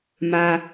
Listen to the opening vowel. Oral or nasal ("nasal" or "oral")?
oral